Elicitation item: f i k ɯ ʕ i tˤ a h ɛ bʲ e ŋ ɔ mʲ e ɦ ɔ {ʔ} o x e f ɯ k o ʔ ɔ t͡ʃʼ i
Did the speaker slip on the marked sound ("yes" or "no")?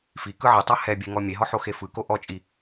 yes